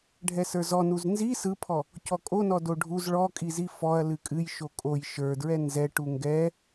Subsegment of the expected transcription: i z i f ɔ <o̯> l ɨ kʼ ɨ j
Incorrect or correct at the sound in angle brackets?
incorrect: ɐ̯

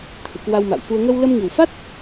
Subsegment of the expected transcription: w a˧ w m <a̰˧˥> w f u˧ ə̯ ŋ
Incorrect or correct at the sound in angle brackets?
incorrect: a̰˧˨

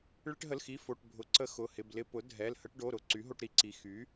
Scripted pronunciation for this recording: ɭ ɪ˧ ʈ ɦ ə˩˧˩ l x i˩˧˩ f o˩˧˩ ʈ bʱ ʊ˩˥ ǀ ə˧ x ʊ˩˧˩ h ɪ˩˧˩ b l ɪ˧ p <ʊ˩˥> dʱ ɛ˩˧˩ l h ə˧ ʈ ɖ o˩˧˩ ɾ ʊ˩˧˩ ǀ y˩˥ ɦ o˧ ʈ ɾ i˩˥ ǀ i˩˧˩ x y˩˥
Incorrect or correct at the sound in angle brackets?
correct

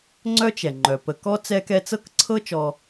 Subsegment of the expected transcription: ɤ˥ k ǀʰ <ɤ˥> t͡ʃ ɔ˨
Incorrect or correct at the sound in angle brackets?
correct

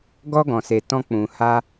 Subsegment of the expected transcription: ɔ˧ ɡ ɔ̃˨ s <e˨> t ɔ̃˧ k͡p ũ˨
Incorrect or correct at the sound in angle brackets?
correct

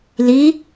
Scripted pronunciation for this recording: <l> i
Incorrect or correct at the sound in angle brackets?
correct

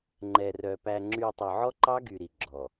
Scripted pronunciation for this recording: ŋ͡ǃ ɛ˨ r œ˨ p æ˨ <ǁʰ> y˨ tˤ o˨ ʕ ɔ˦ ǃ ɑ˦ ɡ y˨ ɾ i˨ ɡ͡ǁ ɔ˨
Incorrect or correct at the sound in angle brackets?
incorrect: ŋ͡ǁ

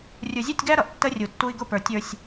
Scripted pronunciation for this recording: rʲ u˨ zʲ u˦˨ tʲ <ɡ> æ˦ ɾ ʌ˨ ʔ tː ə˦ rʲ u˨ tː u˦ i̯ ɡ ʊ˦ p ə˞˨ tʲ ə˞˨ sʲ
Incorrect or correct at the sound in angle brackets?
correct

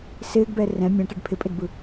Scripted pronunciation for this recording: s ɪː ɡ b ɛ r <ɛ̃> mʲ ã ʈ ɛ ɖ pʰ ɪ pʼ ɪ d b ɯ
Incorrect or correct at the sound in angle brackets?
correct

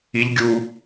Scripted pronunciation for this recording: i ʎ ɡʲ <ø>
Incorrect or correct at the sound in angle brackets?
incorrect: u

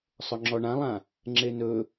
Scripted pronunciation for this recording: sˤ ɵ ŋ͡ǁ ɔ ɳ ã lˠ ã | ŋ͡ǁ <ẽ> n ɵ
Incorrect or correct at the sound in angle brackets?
incorrect: e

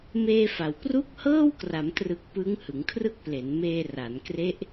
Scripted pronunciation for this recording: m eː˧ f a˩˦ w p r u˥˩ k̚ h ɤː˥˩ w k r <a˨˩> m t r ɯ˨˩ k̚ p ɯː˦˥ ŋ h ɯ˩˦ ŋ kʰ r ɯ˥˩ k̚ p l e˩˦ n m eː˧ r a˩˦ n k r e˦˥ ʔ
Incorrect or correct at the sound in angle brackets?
incorrect: a˩˦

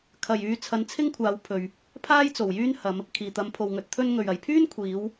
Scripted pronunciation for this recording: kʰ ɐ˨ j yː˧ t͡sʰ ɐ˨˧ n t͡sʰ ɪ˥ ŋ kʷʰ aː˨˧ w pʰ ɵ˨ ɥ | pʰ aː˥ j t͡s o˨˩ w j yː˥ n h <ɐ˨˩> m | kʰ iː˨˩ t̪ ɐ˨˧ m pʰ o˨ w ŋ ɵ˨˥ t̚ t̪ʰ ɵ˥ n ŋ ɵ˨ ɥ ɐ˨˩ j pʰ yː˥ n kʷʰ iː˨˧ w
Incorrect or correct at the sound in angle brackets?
incorrect: ɐ˨˧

